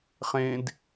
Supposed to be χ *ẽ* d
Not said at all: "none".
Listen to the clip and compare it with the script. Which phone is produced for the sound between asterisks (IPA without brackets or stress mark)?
ẽ